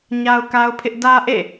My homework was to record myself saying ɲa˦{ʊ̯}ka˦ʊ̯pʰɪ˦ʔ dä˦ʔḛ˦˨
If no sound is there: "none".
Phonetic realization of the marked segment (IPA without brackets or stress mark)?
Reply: ʊ̯